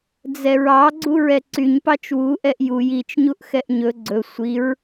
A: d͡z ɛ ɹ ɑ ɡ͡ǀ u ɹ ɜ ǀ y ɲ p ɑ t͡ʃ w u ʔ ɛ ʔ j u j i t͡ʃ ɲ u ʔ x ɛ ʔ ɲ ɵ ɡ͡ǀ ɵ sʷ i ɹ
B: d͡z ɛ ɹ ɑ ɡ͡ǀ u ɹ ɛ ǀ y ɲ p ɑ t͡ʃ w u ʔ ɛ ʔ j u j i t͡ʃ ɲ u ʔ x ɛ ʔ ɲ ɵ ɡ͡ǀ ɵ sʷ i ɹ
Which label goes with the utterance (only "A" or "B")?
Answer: B